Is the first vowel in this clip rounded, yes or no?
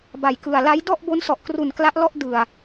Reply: no